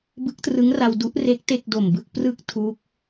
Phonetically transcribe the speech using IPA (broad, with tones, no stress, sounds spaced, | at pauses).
b ɯ˦˥ k̚ t r ɯ˦˥ ŋ r a˧ w d u˦˥ ʔ r e˦˥ k̚ t e˥˩ k̚ d o˨˩ m b ɯ˥˩ k̚ p r ɯ˥˩ k̚ tʰ u˦˥ k̚